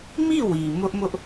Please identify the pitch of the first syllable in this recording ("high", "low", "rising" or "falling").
falling